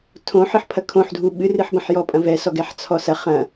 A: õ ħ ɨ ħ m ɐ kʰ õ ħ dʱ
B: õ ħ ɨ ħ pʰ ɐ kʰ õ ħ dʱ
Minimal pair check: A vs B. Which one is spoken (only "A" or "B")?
B